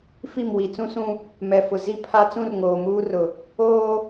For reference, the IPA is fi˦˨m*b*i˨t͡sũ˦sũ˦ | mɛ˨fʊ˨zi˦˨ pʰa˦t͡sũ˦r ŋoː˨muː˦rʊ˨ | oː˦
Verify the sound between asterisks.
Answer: incorrect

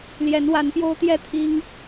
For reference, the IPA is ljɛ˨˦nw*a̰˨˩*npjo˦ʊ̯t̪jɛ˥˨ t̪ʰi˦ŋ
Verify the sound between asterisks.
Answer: incorrect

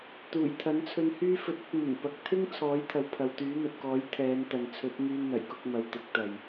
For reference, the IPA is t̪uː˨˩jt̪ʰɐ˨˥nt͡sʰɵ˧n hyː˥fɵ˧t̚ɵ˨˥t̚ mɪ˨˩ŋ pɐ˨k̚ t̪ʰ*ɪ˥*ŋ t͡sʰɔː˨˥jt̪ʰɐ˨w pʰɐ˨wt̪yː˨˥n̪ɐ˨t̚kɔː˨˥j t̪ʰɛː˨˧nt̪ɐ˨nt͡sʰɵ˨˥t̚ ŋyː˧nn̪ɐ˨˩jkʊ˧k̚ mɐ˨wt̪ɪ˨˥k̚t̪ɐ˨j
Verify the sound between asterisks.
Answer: correct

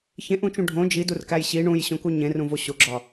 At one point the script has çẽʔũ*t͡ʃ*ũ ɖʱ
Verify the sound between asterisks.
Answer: correct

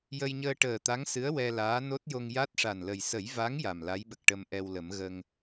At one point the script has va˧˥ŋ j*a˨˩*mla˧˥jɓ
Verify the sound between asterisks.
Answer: correct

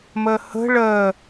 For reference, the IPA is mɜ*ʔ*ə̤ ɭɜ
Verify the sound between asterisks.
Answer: incorrect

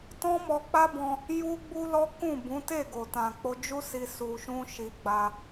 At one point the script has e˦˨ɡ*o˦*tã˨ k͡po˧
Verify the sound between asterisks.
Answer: incorrect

